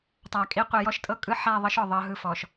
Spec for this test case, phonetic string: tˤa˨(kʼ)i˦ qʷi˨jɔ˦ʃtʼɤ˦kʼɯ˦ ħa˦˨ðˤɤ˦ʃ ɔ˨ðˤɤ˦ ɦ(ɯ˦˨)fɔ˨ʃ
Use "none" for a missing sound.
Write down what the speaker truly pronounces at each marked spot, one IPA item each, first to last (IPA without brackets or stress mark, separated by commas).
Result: kʼ, ɯ˦˨